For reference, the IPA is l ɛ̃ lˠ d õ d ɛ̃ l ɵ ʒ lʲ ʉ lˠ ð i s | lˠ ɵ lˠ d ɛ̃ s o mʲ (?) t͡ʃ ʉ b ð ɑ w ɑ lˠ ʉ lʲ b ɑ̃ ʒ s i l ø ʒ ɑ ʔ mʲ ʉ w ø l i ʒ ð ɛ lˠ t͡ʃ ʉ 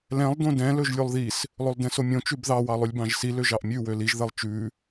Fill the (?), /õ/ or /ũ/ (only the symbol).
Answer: õ